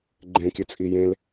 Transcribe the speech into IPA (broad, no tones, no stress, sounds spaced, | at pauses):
ɡ͡ǃ ẽ kʲ ʉ t͡sʼ i j ẽ l